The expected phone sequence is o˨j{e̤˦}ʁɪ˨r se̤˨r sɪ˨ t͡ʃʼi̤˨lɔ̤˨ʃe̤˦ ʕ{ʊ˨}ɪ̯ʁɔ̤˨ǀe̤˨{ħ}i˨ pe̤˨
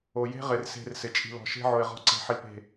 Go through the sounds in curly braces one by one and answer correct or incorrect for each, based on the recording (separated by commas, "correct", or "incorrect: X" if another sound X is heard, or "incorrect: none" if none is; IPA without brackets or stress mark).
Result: correct, correct, correct